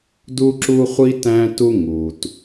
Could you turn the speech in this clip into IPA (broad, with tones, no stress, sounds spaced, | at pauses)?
d u˦ ǁ u˦ χʷ i˦ t æ̃˦ t u˦ ŋ u˨ t